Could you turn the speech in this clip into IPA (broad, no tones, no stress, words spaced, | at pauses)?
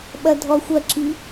ɓɐdʱɔxʷɐǁi